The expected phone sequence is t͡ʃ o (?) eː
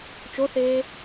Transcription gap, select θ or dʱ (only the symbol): θ